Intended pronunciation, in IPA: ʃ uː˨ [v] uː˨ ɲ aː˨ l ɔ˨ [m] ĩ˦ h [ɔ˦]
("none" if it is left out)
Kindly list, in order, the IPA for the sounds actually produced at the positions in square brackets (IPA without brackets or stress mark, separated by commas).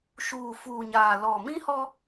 f, m, ɔ˦